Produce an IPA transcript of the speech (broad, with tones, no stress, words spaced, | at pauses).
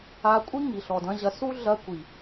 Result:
a˧kʷʼi˦ ŋi˨ɬɔ˨dɐ̃˦ʑɐ˧ su˦ ɮɐ˧kʷi˨